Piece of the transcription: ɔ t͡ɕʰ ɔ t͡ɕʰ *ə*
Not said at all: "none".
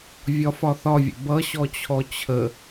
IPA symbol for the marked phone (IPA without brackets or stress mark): ə